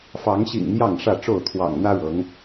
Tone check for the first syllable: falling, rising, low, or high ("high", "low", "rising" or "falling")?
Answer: rising